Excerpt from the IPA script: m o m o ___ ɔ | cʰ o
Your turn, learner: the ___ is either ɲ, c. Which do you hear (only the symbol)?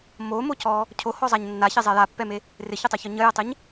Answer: c